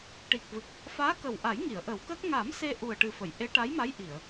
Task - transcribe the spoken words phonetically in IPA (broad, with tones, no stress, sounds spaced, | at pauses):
ʈ i˨˩ k̚ v ɨ˨˩ k̚ | f aː˧˥ k ə˨˩ w ʔ a˨˩˦ j ŋ i˨˩˨ ə̯ ʔ ə˨˩˦ w k əː˦˥ k̚ ŋ a˨˩˦ m s e˧ ʔ u˨˩ ə̯ ʈ ɨ˨˩ f ə˨˩˨ j ʔ e˧˥ ʈ a˧˥ j m a˧˥ j ʔ i˨˩˨ ə̯